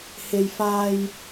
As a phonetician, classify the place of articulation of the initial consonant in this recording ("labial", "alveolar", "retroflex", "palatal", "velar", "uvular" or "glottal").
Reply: glottal